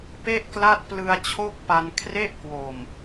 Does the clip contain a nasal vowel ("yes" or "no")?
no